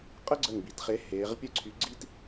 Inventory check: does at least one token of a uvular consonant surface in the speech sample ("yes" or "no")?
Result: yes